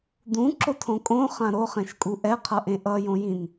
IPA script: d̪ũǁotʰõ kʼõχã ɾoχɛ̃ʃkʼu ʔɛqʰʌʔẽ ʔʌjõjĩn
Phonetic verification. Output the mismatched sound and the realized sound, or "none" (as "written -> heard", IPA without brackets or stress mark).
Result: none